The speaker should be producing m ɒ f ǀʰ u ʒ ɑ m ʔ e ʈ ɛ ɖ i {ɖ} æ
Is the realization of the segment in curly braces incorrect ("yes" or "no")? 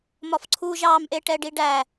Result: no